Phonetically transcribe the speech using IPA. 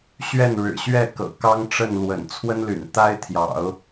ɕɥɛ˥˩nɻɻ̩˨˩ɕɥɛ˥˩ kɤ̰˨˩kɑ˥ŋʈ͡ʂə˥˩nlwə̰˨˩n t͡sʰwə˥nly̰˨˩nt̪a˥ɪ̯t̪ʰjɑ̰˨˩˦ʊ̯

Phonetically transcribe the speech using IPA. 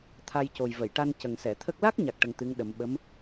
t̪ʰa˧jco˨˩j və˨˩˨jʈa˧n cə˨˩ŋsɛ˨˩˨t̪ʰə˦˥k̚ la˦˥k̚ɲa˨˩k̚ ʈə˧ŋt̪ɨ˧˥ŋ ɗə˨˩˦m ɓə˧˥m

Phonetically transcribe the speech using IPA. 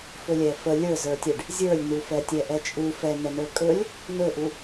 fɵlʲɛfə lʲə˞zə˞tʲɛɖ | zʲə˞lʲnufɛtʲɛ ʔɛt͡ʃʼu fɛ n̪ɛnə˞kʼɵlʲ | nɵʔu

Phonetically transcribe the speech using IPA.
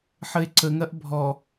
ħəe̯ǀəŋɐʔ bʱɔ

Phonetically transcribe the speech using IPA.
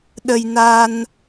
ɗə˧jna˧n

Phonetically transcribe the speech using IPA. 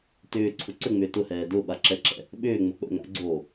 tʏːǀʰʊ ǀəŋ͡mʏː tʊhɛː dʊɓaǁɛǁɛ̰ | ɓʏːŋ͡mʊ k͡pə̰ ŋa̰ɡ͡ǀoː

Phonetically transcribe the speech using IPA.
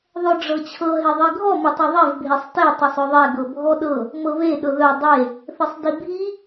ðˤœɖ͡ʐɤt͡ɕʰɤ ɦeðˤiɡʱɔ mɘtˤeðˤev bʱesˤte tˤœsˤœðˤɛ ɡɤbʱɔɗɤ | mɤβe ɗɤðœ dˤe | θɘsˤdibʱi

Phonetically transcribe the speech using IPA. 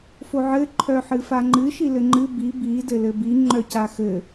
foʕɘ ǃʰœħɨfaŋ͡ǃɨ ʃilɘŋ͡ǃɨ bi bi dɘlɘbi ŋ͡ǃœcaxɘ

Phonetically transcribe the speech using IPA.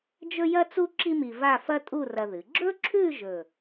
d͡ʒɵ˥jɐ˥t͡su˥ ǁi˥mi˧ va˥˧fɐ˥ tʼu˥˧rɐ˧ðɨ˩˧ ɡ͡ǁɵ˥ǁʰʉ˥˧ ʒɵ˧˩

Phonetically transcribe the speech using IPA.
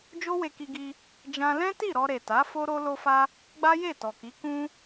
d͡ʒo˦we˧ki˧ɡi˧ | d͡ʒã˧lɛ̃˦ti˦˨ ɾɔ˧ɾe˨ta˨˦ fo˦ɾo˦ lo˧fa˧ | ɡ͡ba˦je˦˨tɔ˨ki˨˦ kũ˦

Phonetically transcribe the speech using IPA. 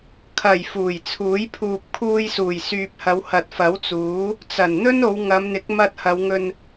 kʰɐ˨˩j fuː˨˩jt͡sʰuː˨˥j pʰuː˨p̚kʰuː˧jsuː˨˩j syː˨p̚hɐ˨˧w hɐ˨t̚fɐ˨˥wt͡suː˨˥ | t͡sɐ˨˩nn̪ɵ˥n o˨˧wŋɐ˨˧mn̪ɪ˨˥k̚ mɐ˧t̚hɐ˨˧wŋɵ˧n

